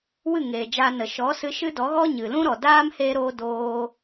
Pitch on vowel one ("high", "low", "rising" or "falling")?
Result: falling